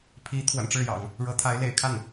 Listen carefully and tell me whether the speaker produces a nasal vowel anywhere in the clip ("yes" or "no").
no